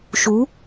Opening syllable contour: rising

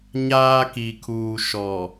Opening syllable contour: high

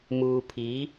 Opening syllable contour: low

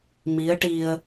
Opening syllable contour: rising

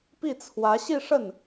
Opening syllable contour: falling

